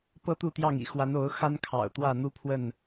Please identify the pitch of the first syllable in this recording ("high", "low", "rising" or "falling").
high